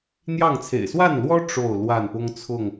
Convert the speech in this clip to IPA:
n̪jɑ˥˨ŋt͡sʰḛ˨˩ɪ̯ swa˥˨nlwɔ˦ ʈ͡ʂo˥˨ʊ̯lwa˥˨n pʊ˦ŋt͡sʰʊ˥˨ŋ

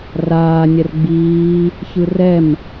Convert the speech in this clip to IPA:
raː nʲɛrɡ͡biː | çɯrɛm

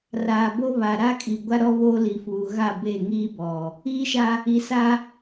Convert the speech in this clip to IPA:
raː˨bo˦βa˨ ɾa˦kʼi˨ɡʷa˦ɾɔ˦ βo˦li˨fuː˨ ɣa˦˨be˦˨ŋiː˦ bɔ˨ | iː˦ʃa˦ | i˨sa˦

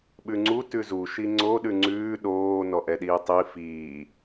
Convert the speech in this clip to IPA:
ɓʉŋ͡ǀu tʉzu ʃiŋ͡ǀo ɗʉŋ͡ǀʉː ɗoː nɔʔɛɗiːtˤi fiː

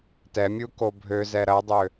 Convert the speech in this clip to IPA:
tɛmʲuko bʱøzɛ ɾɐdˤø

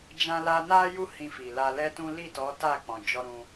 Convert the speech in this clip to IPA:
d͡ʒã˧la˧na˦ju˦˨ hĩ˧fi˨la˧ lɛ˦tũ˦ li˦˨tɔ˨˦ ta˦˨k͡pɔ̃˨ d͡ʒɔ˧ɾũ˧

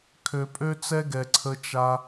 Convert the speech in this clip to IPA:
kʰø˨pʼø˦t͡sɛ˦ɡɛ˨ ǀʰə˧t͡ʃa˧

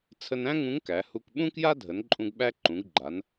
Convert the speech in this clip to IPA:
t͡sʰə˧næ̃˥ ŋũ˧˥ŋkæ˩˧hu˧k ɓũ˥kja˥dʱə˩˧nǃʼũ˧ɡ ɓæ˥ ǃũ˩˧ɡɡ͡ǃa˩˧n

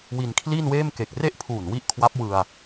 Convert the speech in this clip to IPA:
wi˧nkʰliː˥˩nweː˥˩m ke˨˩k̚re˥˩ʔ pʰuː˨˩nwi˦˥ʔ kʰwa˦˥p̚wɯ˧a̯

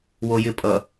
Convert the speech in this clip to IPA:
wojɪpʼʌ

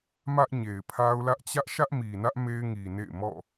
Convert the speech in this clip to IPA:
mä˦ʔɲe˨ɪ̯pʰa˦ʊ̯lä˦ʔ t͡ɕä˦ʔʃä˦ʔmi˨nä˦ʔ me˦ɪ̯ŋi˨nḛ˦˨ɪ̯ mɔ̰˦˨

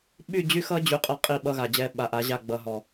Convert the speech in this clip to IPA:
ɓy˦˨d͡ʑy˦xʌ˦d͡ʑy˨ qʼʌ˦˨qʼi˦˨ ɓʌ˦ɣa˨d͡ʑɛ˦ ɓa˨ʔa˨˦ʑa˦˨ ɡ͡bʌ˨ɦɔ˨

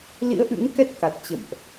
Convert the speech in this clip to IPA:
lḭ˧˥ə̯ʔɨ̰˧˥ŋkɛ˦˥t̚ ka˨˩t̚t͡ɕə̰˧˨mʔ

